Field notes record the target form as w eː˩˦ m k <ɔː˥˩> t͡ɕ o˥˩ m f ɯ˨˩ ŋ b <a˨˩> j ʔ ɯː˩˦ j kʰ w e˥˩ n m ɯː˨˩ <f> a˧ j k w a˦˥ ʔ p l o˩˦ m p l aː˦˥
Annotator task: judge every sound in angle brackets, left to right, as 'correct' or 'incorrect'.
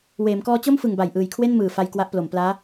incorrect, correct, correct

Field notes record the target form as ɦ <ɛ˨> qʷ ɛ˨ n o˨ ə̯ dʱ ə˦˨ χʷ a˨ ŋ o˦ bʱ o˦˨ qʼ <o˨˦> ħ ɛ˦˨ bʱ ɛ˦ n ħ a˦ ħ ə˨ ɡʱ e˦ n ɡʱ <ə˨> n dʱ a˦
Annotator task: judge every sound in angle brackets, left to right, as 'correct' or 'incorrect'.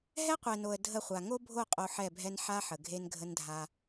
incorrect, incorrect, incorrect

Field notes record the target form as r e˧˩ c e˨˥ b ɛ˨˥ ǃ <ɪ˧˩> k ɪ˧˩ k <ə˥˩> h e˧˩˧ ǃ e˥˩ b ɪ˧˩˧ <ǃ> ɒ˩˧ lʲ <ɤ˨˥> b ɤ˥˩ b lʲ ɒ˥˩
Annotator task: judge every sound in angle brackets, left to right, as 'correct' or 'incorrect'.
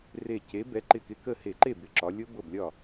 correct, correct, incorrect, incorrect

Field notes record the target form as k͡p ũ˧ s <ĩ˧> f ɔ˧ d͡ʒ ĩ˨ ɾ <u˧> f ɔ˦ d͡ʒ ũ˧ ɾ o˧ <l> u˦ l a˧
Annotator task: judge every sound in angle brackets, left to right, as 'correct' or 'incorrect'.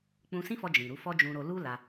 incorrect, incorrect, correct

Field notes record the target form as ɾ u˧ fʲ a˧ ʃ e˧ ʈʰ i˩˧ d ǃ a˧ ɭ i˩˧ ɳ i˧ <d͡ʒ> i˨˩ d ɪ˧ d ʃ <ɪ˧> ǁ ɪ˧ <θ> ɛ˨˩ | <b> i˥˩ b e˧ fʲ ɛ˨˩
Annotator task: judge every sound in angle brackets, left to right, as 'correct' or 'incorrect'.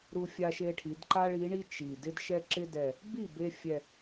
incorrect, incorrect, incorrect, correct

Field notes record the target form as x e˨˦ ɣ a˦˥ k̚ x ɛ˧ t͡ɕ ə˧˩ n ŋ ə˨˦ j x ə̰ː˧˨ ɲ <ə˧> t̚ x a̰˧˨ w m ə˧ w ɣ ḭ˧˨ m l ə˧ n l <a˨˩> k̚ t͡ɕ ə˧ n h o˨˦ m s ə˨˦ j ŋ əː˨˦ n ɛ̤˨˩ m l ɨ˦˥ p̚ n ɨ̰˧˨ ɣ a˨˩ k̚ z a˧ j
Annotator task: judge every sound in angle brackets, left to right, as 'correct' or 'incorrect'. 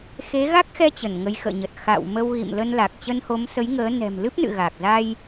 incorrect, correct

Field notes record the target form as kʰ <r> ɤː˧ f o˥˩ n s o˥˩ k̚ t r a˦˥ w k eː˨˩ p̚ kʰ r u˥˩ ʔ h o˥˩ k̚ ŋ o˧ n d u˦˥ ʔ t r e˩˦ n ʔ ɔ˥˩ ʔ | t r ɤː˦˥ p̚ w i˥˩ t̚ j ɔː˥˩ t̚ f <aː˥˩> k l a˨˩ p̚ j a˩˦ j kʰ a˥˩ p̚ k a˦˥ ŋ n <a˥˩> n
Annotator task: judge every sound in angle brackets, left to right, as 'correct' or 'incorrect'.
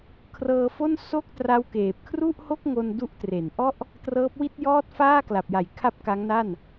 correct, correct, correct

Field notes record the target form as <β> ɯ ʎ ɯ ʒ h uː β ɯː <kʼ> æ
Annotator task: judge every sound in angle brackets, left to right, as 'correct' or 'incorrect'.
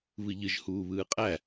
correct, incorrect

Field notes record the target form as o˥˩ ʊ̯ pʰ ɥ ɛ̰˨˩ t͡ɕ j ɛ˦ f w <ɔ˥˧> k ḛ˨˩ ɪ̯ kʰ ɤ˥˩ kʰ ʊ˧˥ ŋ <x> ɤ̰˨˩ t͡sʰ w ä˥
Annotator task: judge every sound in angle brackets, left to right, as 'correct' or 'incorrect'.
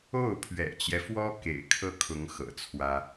incorrect, correct

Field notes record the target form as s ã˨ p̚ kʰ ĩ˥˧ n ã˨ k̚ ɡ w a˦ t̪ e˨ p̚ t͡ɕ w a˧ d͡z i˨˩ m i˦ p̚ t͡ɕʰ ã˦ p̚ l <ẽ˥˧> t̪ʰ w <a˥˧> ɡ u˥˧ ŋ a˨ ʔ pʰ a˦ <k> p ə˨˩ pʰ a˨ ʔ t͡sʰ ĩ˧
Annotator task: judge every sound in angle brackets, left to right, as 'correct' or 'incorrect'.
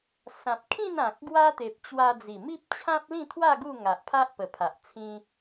incorrect, correct, incorrect

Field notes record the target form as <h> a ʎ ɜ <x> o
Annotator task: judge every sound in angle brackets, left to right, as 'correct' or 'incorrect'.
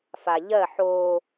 incorrect, incorrect

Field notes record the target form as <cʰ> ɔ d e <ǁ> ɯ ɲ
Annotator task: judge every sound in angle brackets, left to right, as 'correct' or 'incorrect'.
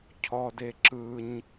correct, correct

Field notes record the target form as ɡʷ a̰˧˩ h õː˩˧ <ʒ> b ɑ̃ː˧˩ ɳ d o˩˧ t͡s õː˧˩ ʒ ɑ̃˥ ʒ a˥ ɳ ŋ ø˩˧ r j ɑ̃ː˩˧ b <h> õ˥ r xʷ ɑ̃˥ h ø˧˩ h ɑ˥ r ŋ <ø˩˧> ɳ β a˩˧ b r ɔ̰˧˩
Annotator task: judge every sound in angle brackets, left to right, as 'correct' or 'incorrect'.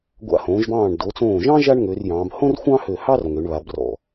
correct, correct, correct

